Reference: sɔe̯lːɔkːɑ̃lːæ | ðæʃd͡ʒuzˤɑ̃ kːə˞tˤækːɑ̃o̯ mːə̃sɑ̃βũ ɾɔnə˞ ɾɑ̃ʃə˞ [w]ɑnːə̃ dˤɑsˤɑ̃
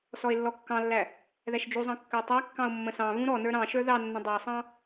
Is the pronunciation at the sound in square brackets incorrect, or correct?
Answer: incorrect